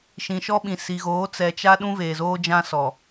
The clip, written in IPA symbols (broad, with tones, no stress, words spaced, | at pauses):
ʃĩ˨ʃɔ˦ɓĩ˨ si˨ɣoː˨˦ t͡sɛ˨t͡ʃa˦ ɗũ˦veː˨zoː˦ d͡ʒã˦sɔ˨